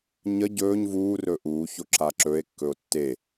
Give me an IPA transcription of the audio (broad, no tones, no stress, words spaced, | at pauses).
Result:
ɲə ɟɵːɲ vuːrɵː ʔuːço ǁaǁɵe̯kːɵo̯ tːe